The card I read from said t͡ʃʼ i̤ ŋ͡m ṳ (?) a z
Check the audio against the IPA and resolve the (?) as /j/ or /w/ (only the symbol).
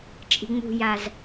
j